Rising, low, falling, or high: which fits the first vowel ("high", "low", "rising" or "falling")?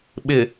low